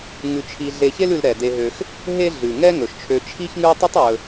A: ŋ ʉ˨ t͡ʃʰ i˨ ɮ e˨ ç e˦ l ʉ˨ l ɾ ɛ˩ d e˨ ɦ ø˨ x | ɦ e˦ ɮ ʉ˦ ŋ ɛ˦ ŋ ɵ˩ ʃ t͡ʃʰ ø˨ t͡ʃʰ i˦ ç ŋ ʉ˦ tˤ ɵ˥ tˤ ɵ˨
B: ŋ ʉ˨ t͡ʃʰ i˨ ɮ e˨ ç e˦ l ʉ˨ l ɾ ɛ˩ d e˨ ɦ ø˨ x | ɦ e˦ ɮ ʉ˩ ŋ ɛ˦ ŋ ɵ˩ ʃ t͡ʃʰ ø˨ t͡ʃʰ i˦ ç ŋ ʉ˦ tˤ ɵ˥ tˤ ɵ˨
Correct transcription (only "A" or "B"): B